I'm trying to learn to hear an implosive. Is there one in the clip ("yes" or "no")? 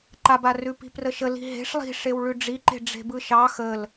no